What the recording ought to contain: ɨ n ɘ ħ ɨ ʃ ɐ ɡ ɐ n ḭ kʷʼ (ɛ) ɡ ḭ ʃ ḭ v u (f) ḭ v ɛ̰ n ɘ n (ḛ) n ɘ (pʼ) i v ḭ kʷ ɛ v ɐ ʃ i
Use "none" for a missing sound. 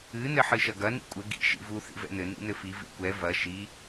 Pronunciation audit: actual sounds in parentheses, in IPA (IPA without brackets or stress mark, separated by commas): ɘ, θ, ḭ, f